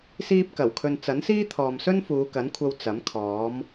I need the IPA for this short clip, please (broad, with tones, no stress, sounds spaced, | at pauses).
s iː˥ p̚ k ɐ˨˩ w kʰ ɵ˧ n t͡s ɐ˨˥ n s iː˥ t̪ʰ ɔː˨ m s ɵ˥ n f uː˨˧ k ɐ˨˥ n kʷʰ ɐ˧ w t͡s ɐ˨˥ m kʰ ɔː˨˥ m